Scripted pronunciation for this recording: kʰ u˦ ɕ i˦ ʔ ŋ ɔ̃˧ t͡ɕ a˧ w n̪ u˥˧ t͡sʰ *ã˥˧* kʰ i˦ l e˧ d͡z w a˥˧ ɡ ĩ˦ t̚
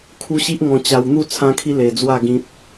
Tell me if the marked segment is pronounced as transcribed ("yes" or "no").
no